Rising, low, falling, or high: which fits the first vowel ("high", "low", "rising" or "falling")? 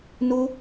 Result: high